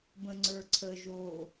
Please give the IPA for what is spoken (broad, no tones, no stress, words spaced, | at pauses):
bə̃ŋ͡ǀə˞ǀʰə ʒo